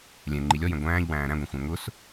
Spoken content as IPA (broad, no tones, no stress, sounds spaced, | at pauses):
lʲ ɛ̃ ŋ͡ǃ i lʲ ɔ j ɛ̃ ɡʷ æ̃ː ʎ w æ̃ː ɾ æ̃ ɡʷ ɛ̃ xʷ æ̃ ŋ ʊ s